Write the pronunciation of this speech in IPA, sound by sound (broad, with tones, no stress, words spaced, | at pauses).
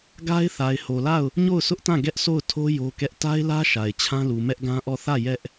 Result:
ɡa˦ɪ̯ θa˨ɪ̯ho˨la˦˨ʊ̯ | ɲo˦˨ʊ̯sʰʊ˦ʔtã˦˨ ɡɛ˦ʔso˦˨ʊ̯ tʰo˦ jo˦kɛ˦ʔ ta˦ɪ̯lä˦ ʃa˨ɪ̯t͡ɕʰã˦lu˨ mɛ˦ʔɡã˦ʔɔ˦˨ θä˦˨ jɛ˦ʔ